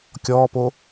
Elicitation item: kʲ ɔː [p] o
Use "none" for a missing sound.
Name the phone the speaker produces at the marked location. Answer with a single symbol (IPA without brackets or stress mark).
p